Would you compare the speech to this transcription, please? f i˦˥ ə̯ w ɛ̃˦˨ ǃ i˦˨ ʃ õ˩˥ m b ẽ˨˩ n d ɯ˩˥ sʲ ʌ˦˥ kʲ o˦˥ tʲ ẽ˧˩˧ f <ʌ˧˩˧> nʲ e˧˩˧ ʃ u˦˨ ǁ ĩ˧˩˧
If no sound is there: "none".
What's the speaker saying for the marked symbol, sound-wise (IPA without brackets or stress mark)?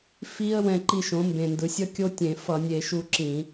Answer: ʌ˧˩˧